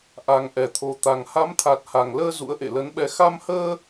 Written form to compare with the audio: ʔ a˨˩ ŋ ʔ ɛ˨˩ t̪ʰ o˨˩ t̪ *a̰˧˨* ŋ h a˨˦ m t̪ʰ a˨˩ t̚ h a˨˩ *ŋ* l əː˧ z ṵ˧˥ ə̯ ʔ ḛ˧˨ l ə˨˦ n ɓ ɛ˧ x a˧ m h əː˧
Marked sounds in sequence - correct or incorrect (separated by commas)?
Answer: incorrect, correct